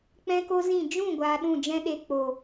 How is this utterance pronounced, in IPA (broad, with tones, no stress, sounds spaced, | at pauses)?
k͡p ɛ̃˦ k o˦ z ĩ˦˨ d͡ʒ ũ˦˨ ɡʷ aː˧ ɗ ũ˦˨ d͡ʒ ɛ̃˦ ɗ e˧ k͡p o˨